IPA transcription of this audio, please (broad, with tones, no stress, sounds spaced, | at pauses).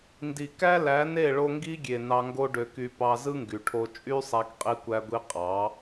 n d i˨ k æ˦ l æ˨˦ n e˦˨ ɭ o˧ ŋ ɡ i˦ ɡʲ e˨ n ɑ˧ ŋ ɡ o˦ ɖ ø˧ k y˧ p ɑ˧ z ɯ˦ ŋ ɡ y˨ ʈʰ o˧ t͡ʃʼ y˦ sˤ æ˧ k qʼ i˧ kʷ æ˧ ɡʷ i˧ qʼ ɑ˨˦